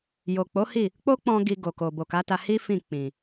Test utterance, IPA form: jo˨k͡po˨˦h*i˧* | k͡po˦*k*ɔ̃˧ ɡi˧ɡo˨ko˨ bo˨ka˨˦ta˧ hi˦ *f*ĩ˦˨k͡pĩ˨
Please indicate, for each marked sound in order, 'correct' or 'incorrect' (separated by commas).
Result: incorrect, incorrect, correct